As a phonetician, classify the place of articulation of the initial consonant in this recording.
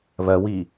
labial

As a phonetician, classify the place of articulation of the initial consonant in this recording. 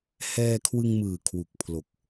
glottal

